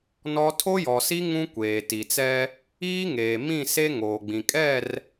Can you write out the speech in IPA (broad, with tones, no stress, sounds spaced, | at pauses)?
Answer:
n ɔ˦ tʰ o˦ j ɔ˨ s i˦ ŋ ũ˦ kʷ eː˨ t i˨ t͡s ɛ˦ | iː˦ ŋ eː˨ m ĩ˦˨ s e˦ ŋ oː˨ ɡ͡b ĩ˨ kʼ ɛ˦˨ r